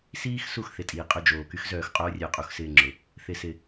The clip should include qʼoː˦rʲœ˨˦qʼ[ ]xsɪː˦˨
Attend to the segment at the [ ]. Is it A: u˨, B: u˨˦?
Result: A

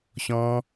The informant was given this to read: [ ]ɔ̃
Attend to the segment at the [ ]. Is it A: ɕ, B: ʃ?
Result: A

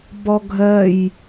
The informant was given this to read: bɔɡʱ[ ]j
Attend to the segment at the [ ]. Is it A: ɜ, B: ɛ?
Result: A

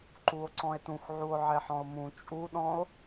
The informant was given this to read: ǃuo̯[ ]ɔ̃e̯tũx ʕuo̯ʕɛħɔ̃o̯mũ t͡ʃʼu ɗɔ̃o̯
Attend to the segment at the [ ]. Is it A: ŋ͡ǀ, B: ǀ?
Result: B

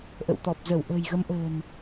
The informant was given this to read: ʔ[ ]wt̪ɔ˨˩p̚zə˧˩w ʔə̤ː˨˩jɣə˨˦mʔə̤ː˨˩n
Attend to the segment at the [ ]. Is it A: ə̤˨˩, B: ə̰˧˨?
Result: B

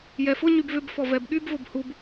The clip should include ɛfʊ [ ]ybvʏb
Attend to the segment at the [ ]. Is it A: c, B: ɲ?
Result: B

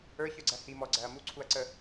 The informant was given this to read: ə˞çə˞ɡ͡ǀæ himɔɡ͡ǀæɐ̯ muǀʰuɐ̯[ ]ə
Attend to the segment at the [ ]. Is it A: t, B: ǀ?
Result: B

